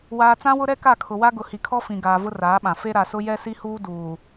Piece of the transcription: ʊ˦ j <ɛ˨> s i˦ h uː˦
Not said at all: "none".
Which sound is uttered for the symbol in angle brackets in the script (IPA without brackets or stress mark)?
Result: ɛ˦